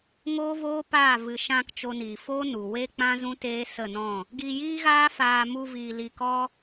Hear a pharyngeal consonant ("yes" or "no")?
no